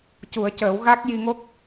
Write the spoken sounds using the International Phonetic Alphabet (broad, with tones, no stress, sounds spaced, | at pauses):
c u˨˩˦ ə̯ c əː˨˩˦ w ɣ a˦˥ k̚ j i˧ ŋ o˦˥ k̚